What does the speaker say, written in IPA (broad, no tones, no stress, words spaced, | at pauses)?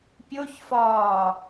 pʲoçfɒː